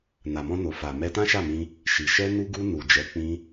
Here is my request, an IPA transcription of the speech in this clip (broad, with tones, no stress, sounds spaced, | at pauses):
n a˨ m ɔ̃˧ n o˨ f a˨ m ɛ˧ t ã˦ ʃ a˦˨ m ĩ˧ | ʃ i˨ ʃ ɛ˧ n u˧ ɡ u˧ n u˨ d͡ʒ ɛ˨˦ k͡p ĩ˦